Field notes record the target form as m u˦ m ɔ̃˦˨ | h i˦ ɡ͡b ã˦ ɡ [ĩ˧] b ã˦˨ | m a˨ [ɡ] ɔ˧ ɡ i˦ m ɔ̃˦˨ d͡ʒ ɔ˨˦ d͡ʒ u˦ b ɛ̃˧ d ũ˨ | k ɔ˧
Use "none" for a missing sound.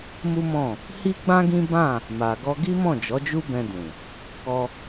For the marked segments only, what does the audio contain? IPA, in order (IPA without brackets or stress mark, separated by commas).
ĩ˦, ɡ